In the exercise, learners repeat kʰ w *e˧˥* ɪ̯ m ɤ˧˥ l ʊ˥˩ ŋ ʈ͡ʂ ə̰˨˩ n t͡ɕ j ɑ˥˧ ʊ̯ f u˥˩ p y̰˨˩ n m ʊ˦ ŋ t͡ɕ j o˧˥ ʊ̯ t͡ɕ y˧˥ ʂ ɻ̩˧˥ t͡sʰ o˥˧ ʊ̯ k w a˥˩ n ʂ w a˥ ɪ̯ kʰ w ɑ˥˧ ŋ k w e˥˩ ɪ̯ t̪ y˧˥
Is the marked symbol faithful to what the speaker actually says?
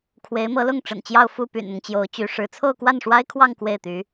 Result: yes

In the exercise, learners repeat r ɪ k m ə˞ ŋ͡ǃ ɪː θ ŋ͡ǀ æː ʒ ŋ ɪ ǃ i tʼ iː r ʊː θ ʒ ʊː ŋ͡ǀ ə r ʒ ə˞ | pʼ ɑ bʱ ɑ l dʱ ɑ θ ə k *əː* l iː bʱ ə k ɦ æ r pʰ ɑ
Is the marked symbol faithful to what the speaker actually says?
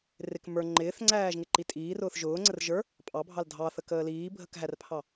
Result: yes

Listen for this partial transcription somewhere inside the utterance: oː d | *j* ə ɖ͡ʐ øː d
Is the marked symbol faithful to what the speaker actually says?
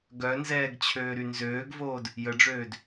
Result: yes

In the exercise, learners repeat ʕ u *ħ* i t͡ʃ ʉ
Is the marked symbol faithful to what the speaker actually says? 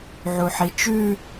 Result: yes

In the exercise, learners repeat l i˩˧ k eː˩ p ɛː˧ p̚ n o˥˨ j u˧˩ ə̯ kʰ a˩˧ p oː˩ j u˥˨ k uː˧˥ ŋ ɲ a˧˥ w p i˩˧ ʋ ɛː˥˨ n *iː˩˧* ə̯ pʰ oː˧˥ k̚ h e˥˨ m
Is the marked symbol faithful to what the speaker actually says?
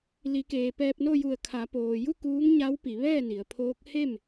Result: no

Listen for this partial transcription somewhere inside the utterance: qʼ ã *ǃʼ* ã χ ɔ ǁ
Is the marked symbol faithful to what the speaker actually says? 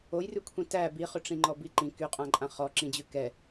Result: yes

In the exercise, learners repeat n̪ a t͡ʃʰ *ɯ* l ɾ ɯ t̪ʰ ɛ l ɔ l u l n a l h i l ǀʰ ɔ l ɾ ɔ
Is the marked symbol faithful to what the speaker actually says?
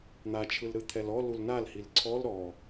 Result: yes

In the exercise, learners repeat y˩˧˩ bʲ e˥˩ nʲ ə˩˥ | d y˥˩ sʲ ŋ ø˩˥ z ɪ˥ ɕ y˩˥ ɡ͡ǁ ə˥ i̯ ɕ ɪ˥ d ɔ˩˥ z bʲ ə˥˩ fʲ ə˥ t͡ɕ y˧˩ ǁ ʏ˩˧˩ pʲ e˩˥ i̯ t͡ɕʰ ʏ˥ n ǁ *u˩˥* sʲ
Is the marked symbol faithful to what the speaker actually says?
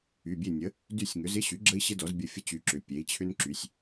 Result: no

